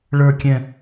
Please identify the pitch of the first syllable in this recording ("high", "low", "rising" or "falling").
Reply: falling